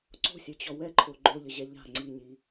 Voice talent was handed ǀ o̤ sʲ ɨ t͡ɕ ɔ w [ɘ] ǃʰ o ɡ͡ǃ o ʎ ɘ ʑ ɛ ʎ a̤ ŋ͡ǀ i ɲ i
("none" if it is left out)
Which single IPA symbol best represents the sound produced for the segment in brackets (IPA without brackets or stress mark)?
ɛ